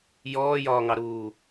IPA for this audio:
j ɔː j ɒː ŋ ɑ ɾ uː

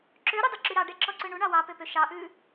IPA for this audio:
ǁ ø ɾ u dˤ ɵ ǁ y ɾ ɑ ɖ ɛ ǁ ɔ ǀ ø ɳ u ɳ ɑ w ɑ p ø p ø ʃ ɑ ʔ ʉː

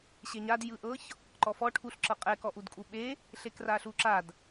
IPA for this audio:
ɕ e ɲ a d j ɯ ʔ ɤ ç | ǃ ɔ f ɔ ʈʰ u ɬ ǁ ɤ qʼ ɛ k ɔ ʔ u d kʼ u ɓ e | ɬ e k r a ɬ u ǁ a d

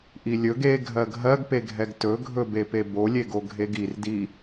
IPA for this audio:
ʔ i lʲ ɵ ɡ e ɡʱ ɜ ɡʱ ɜ ɡ p e ɡʱ ɛ ɡ t ɵ ɡʱ ɵ b e p e b o lʲ e ɡ o ɡʱ e ɡ i r d i

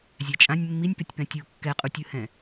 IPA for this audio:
zʲ ɛ t͡ʃʼ ã nʲ mː i nʲ p e tʲ p ɛ̃ tʲ u kː ɛ qʼ u tʲ ɯ h ɛ̃

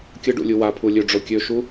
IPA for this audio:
kʲ ə ɖ ṵ lʲ u w a pʰ u lʲ ø ɖ͡ʐ o kʲ ø ʃ u

